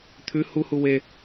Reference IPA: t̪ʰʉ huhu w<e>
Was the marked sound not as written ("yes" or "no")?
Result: no